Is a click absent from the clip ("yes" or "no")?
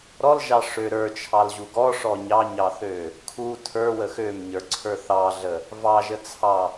no